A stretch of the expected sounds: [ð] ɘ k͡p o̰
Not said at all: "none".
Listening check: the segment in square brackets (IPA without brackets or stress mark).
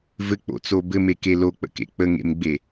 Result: v